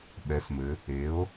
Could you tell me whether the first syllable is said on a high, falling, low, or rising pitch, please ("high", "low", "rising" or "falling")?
rising